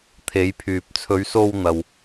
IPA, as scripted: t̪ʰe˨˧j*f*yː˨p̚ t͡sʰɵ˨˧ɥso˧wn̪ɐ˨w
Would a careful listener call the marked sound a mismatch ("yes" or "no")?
yes